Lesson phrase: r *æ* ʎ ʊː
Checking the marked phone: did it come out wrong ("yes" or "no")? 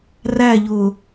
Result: no